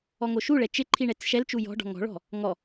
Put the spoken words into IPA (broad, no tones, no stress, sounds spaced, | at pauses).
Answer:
ɔ ŋ o ʃ u ɭ ɛ t͡ʃ ɪ ǃʰ i ɳ ɛ t͡s ʃ ɛ l t͡ʃ u j ɔ̤ ɖ ɔ̤ ŋ ɔ̤ ɭ ɔ̤ | ŋ ɔ